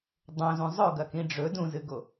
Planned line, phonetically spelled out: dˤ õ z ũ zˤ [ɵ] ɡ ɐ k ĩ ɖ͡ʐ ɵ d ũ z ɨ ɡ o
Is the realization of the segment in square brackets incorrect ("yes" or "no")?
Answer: no